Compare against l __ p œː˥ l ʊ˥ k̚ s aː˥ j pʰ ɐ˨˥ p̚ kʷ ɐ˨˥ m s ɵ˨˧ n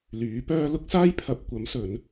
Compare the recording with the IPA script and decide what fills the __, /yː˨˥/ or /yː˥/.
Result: yː˨˥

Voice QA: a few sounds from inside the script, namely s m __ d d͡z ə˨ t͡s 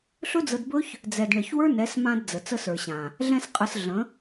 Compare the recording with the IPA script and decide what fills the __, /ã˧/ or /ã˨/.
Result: ã˧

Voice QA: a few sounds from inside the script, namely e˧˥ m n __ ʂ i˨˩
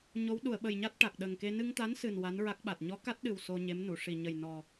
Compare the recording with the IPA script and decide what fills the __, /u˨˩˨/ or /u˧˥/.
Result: u˨˩˨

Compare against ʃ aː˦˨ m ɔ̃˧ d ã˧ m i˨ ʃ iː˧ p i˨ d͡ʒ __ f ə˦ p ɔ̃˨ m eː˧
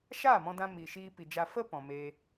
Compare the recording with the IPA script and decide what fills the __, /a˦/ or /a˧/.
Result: a˧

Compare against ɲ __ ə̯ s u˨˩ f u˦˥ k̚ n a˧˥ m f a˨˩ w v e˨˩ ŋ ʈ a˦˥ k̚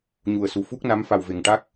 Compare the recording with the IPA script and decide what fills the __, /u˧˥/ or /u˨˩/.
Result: u˨˩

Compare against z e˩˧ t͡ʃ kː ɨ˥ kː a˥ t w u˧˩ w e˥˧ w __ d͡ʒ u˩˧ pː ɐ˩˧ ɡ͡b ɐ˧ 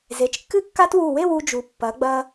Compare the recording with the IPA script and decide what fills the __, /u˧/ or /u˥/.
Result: u˧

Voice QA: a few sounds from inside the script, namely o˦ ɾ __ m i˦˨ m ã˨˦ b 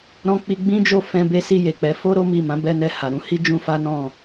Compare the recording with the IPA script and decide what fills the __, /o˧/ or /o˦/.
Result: o˦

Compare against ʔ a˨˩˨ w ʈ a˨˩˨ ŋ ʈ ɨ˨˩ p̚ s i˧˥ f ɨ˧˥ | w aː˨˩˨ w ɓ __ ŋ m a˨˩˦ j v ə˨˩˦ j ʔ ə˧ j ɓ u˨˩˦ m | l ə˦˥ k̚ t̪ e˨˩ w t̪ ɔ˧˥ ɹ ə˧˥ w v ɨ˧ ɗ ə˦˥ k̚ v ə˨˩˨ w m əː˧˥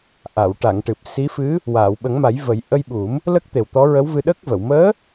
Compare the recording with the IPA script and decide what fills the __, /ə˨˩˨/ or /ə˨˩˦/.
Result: ə˨˩˦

